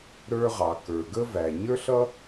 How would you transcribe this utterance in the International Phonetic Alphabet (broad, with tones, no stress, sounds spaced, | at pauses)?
ɾ ə˞˧ ʁ ɑ˩ k ə˞˩ ɡ ə˧ v æ˩ ɲ ə˞˥ ɬ ʌ˥